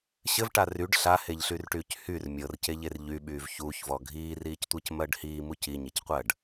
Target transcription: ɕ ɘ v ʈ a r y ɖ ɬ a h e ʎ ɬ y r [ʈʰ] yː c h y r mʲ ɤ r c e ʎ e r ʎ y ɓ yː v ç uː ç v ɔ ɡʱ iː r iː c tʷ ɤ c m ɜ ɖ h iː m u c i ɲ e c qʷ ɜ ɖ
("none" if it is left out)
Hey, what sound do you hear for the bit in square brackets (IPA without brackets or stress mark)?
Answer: ʈ